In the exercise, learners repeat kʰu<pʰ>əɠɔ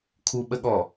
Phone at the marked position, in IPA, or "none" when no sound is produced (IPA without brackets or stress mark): ɓ